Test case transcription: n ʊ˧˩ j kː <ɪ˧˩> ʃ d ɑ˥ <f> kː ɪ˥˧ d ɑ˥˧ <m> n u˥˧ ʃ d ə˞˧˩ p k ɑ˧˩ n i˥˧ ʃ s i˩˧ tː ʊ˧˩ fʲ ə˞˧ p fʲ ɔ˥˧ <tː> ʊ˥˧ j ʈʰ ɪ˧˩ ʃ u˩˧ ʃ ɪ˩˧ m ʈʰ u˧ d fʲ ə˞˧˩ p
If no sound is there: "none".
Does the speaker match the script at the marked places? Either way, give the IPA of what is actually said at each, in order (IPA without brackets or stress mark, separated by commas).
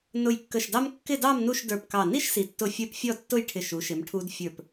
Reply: ə˧˩, m, m, tː